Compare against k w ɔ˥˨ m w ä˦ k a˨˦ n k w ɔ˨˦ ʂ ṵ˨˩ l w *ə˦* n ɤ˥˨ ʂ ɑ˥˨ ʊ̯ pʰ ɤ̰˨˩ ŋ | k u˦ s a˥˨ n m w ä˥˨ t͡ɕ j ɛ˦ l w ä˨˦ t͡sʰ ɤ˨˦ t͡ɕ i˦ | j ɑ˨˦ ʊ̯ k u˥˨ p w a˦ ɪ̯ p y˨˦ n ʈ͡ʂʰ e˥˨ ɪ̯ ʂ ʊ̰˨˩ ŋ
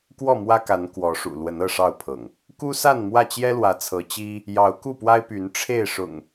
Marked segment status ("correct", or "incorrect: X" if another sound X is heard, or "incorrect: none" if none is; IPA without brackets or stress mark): incorrect: ə˨˦